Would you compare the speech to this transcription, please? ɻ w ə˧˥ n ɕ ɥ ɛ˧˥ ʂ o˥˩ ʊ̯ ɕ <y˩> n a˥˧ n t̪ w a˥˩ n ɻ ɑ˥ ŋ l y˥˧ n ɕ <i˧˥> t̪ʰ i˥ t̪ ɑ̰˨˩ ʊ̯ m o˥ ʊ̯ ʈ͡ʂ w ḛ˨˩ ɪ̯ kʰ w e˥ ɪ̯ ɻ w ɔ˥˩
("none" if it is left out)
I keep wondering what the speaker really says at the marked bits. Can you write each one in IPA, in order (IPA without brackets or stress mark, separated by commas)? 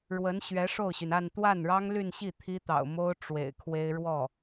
y˩, i˥˩